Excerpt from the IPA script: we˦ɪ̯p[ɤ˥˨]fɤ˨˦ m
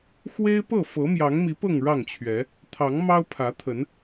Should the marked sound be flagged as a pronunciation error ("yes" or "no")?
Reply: no